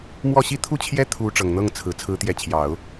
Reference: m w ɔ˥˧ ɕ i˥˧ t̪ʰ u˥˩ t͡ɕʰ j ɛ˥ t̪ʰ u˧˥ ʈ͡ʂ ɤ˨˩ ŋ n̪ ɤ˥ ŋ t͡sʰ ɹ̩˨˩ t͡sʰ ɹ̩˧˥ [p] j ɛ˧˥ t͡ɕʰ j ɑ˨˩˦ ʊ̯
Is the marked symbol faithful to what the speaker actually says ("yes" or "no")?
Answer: no